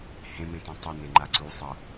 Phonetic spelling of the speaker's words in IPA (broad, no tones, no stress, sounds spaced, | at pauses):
h ẽ m ẽ t ẽ tˤ ə n e ŋ͡ǃ a ǀ u sˤ ʌ